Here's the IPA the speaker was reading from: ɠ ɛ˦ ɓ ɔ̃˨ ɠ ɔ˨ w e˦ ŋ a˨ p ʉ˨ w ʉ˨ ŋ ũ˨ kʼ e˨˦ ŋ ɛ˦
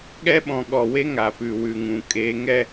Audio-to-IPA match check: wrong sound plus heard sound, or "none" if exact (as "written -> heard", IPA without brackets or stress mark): none